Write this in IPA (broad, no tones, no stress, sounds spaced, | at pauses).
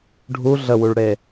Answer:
ɖʱ u ɮ ə w u ɭ ɽ e